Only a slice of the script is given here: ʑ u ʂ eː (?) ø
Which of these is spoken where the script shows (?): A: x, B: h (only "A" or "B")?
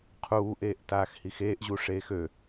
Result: A